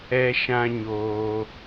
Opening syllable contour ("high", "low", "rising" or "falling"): high